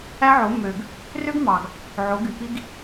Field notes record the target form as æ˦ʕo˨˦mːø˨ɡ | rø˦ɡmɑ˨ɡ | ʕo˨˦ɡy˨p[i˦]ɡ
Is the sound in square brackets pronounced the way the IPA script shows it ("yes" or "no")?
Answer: yes